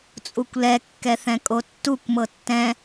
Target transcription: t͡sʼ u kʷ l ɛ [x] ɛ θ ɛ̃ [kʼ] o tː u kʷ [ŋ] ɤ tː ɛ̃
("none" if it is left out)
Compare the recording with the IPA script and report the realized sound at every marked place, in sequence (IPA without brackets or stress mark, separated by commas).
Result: kː, kʼ, m